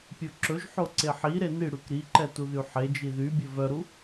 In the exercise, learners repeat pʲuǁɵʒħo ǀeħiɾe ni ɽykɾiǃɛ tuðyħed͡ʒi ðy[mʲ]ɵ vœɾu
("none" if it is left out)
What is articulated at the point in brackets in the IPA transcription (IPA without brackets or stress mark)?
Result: bʲ